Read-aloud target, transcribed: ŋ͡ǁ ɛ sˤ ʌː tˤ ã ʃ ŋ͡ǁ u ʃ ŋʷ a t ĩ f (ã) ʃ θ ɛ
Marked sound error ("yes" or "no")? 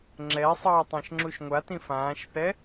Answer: yes